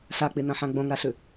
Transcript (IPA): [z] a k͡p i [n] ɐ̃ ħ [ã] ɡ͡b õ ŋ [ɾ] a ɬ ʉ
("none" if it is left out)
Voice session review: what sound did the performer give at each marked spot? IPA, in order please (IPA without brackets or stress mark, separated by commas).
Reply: ɬ, n, ã, ɾ